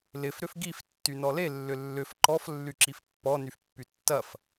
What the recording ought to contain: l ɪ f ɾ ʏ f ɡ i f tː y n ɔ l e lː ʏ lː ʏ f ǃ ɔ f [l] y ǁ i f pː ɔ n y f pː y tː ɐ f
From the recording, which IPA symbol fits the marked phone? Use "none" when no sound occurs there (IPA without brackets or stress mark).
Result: lː